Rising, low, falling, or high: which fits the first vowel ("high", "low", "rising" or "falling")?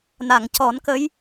low